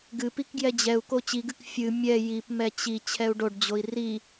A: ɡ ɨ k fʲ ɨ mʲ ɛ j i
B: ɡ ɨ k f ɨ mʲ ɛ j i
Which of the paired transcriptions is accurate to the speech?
A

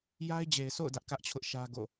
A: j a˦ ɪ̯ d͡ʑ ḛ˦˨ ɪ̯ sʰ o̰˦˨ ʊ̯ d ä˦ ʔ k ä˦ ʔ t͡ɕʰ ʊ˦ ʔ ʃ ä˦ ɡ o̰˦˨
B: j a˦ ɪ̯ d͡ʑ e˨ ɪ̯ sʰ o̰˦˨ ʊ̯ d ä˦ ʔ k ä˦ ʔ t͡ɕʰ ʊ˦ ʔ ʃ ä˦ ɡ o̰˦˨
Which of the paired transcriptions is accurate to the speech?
B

